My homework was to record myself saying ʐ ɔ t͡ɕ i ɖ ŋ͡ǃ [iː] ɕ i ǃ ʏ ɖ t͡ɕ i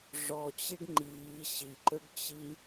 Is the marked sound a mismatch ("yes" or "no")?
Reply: no